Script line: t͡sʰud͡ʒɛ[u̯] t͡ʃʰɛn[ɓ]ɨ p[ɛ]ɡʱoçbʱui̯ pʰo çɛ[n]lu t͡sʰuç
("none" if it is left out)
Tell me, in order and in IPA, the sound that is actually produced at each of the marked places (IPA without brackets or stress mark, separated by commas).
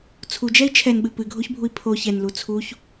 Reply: i̯, ɓ, ɨ, n